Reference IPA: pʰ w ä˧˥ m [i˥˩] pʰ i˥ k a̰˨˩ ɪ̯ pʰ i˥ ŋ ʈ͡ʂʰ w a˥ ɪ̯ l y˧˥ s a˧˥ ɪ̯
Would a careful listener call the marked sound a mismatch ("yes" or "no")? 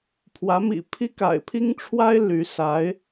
yes